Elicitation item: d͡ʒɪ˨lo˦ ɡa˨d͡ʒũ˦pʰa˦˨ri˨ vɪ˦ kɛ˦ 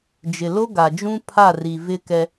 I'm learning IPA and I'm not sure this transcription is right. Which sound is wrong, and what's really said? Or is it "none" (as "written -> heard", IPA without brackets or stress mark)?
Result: none